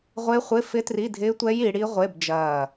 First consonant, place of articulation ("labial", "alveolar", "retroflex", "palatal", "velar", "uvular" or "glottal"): uvular